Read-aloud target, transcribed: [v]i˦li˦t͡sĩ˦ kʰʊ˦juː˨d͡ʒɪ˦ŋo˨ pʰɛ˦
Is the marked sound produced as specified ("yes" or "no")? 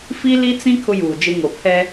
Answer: no